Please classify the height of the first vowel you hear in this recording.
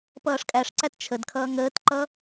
mid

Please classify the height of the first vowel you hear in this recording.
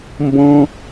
mid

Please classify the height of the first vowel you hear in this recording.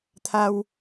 low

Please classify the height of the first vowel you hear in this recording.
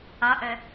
low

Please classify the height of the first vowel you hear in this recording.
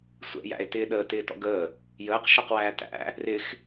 mid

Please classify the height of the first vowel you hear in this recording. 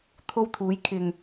mid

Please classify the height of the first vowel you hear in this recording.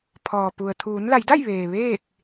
mid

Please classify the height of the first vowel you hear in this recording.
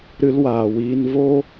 high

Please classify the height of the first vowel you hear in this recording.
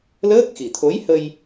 mid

